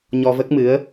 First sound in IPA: ɲ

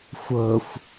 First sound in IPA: xʷ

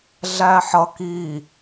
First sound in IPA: ɮ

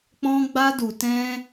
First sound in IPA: k͡p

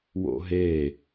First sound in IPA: w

